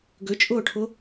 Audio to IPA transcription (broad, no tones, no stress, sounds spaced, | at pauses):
ɡ ʏ t͡ʃʼ ʊː ʈʰ ʊ